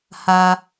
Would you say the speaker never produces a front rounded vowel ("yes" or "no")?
yes